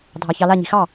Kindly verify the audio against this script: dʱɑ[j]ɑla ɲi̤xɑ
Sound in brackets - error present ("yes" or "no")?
yes